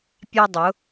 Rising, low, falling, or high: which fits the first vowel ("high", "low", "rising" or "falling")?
high